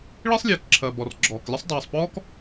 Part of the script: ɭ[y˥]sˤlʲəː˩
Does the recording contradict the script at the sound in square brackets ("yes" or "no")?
yes